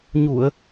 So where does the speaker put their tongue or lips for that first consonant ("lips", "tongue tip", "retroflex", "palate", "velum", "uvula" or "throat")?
palate